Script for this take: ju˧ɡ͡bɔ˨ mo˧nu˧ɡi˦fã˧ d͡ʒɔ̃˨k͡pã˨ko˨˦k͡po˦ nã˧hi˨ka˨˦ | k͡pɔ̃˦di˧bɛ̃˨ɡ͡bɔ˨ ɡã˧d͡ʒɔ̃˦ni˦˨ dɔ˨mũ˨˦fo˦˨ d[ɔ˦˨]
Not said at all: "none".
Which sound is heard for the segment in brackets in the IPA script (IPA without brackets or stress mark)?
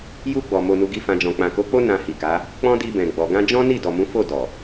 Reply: ɔ˨